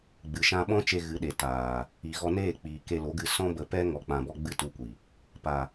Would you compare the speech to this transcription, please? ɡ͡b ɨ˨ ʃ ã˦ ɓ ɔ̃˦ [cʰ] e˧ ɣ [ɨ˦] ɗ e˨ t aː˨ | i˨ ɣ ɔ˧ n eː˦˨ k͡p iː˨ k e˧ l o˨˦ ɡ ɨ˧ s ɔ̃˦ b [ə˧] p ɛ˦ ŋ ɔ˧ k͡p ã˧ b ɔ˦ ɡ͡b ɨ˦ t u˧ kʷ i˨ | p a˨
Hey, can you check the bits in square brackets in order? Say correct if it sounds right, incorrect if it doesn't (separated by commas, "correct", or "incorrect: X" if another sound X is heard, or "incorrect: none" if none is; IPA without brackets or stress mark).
incorrect: t͡ʃ, incorrect: ɨ˨˦, correct